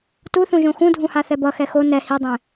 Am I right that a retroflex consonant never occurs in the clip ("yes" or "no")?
yes